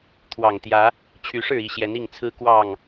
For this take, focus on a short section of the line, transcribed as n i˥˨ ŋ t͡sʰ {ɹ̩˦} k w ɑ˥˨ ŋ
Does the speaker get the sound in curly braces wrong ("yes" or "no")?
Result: no